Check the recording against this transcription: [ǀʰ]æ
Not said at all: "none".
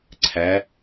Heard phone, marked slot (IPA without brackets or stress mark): ǀʰ